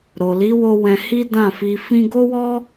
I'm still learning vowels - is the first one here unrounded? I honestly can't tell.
no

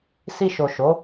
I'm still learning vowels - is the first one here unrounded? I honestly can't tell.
yes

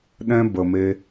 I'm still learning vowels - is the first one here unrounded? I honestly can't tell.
yes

